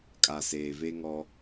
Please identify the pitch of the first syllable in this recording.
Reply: low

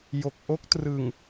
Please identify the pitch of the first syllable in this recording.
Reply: low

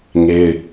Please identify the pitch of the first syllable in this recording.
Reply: high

